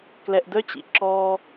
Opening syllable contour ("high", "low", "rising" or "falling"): low